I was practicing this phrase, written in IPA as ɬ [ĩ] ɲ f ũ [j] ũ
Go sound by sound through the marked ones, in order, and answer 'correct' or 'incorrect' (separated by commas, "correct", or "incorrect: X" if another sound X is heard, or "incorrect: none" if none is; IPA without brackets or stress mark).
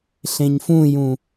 incorrect: ẽ, correct